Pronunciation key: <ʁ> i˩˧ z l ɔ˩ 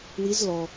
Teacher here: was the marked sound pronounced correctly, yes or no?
no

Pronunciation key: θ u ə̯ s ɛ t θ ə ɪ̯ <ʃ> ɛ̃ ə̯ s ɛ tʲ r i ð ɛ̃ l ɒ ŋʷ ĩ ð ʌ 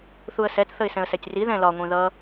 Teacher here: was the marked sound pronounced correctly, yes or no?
no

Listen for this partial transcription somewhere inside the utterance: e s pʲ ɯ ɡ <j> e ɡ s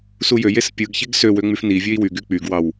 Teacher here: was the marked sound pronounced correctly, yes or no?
no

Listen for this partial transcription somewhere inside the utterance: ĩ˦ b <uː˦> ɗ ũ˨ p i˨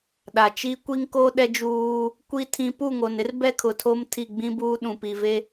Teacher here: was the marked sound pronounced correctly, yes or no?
yes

